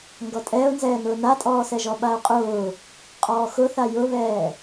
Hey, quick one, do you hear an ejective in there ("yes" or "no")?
yes